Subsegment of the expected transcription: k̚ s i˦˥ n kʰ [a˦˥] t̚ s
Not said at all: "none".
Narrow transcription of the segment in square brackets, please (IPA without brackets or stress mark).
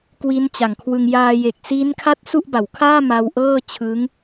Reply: a˥˩